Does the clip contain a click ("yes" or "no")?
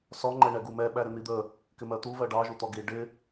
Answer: yes